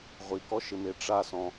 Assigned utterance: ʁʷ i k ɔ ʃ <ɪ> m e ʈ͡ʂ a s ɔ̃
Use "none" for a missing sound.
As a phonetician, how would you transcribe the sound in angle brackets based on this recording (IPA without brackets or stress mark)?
ɪ